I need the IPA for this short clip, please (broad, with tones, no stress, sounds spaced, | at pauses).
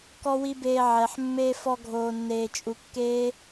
k ɔ˦ w i˦ b eː˧ ʕ ɛ˨ ħ mː eː˧ f ɔ˧ ɡʱ oː˨ nː eː˨ t͡ʃʼ u˨ kː eː˦